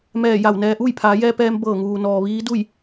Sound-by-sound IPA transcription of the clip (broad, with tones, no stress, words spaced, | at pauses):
mɛː˧˩ja˧˩wnɛː˧ ʔuː˥˨jpʰaː˩˧jɛː˧pɛː˧m bɤː˧˩ŋuː˩nɔː˩ ʋiː˧˥du˥˨j